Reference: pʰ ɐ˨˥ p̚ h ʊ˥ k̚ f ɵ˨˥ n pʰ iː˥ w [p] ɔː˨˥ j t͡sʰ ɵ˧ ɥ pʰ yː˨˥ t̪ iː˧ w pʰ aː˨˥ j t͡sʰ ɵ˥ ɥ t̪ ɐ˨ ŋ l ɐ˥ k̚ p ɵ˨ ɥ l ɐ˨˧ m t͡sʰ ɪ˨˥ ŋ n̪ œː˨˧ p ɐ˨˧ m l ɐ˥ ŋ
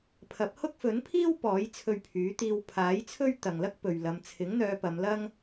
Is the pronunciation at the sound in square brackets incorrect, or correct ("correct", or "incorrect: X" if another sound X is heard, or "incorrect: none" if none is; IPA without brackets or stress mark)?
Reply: correct